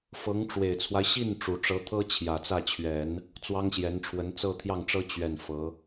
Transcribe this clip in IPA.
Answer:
f ɤ˧˥ ŋ ʈ͡ʂ w e˨˩ ɪ̯ t͡sʰ w a˦ ɪ̯ ɕ i˥˩ n ʈ͡ʂ u˨˩ ʈ͡ʂ ɤ˧˥ t̪ʰ ɤ˥ t͡ɕʰ j ä˨˩ t͡s ä˥˩ t͡ɕʰ ɥ ɛ˨˩˦ n | t͡s w ɑ˥ ŋ ɕ j ɛ˧˥ n ʈ͡ʂʰ w ə˧˥ n t͡s ɤ˥˧ t̪ʰ j ɑ˥˩ ŋ ʈ͡ʂ ɤ˥ t͡ɕ ɥ ɛ˥˩ n f ɤ˧˥

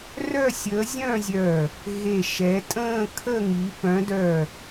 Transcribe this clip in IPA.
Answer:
r œ˥˧ sʲ əː˨˦ zʲ œ̃˥˧ zʲ œ˧˩ | ɣ e˧˩ ʃ ɛ˨˦ tʼ ə̃ː˥˧ kʰ ə˥˧ ŋ i˨˦ p œ̃˨˦ d œ˧˩

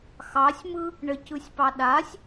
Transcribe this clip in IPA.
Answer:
x ɑ sʲ m ɯ | ɳ ɘ c ɯ sʲ p ɑ ɗ a sʲ

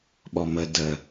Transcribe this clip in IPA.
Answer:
ɓ ɔ m ə d ə

